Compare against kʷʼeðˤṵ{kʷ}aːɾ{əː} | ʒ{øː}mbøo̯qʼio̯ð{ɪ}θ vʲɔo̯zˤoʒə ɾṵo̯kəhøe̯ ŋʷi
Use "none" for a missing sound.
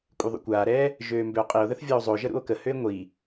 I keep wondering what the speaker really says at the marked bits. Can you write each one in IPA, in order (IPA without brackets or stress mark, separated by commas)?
kʷ, ɛː, øː, ə